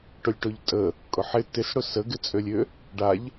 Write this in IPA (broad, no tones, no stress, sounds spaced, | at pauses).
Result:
ʈ ʊ lʲ ʈ ʊ ʎ tʼ ə | kʼ ʊ ħ ɪ t ɪ s ɽ ʊ s ə ɡ ɪ t͡sʼ ø lʲ ø | ɖ a ʎ